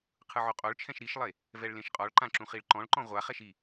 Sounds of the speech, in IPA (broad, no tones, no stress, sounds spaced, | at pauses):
qʰ ɯ ʕ o qʼ o ɭ t͡ʃʰ ɛ̃ ʃ ɾ i ʃ lˠ e | v ɛ ɭ l ẽ ʃ qʼ ɔ ɭ ǃ ã ǁ ũ χ i ɭ ǃ ɔ̃ ɭ ǃ ɔ̃ ʁʷ a χ ɛ ʃ i